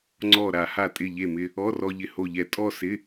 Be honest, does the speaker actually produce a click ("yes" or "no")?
yes